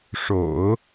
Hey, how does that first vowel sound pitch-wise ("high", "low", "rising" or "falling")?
low